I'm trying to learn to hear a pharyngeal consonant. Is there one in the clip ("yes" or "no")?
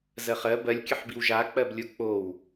yes